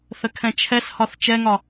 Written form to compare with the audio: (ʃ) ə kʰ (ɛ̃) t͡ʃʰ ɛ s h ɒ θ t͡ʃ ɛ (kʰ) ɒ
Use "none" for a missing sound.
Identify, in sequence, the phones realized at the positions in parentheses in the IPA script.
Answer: θ, ɛ̃, ŋ

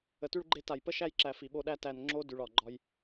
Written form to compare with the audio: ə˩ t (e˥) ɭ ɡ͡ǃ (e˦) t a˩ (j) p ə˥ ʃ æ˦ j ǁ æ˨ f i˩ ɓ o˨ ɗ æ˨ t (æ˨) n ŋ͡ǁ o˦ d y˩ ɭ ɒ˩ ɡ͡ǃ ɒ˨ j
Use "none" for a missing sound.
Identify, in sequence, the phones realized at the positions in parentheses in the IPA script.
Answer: y˥, e˦, j, æ˨

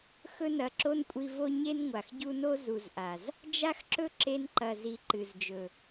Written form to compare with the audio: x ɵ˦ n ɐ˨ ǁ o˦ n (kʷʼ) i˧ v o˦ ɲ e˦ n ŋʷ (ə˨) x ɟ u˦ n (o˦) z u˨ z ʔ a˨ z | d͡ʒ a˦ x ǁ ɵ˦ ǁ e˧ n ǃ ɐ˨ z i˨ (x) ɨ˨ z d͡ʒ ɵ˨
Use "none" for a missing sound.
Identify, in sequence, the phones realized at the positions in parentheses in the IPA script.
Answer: kʷʼ, a˨, o˦, ǃ

